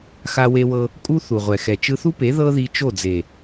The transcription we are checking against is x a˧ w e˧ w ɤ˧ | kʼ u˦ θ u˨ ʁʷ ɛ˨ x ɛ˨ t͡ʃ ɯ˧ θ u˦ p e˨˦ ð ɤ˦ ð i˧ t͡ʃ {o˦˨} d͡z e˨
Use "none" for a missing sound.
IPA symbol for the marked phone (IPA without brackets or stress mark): o˦˨